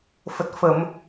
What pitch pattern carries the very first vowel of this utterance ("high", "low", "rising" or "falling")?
low